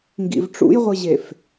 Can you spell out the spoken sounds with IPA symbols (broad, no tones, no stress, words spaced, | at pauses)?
ŋɡḭvʈ͡ʂṵjʁʷɨʑef